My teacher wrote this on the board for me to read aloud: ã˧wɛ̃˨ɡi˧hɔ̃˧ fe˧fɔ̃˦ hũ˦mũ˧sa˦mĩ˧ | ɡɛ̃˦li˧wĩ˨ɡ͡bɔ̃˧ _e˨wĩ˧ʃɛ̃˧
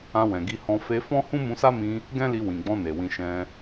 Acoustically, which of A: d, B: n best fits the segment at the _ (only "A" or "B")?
B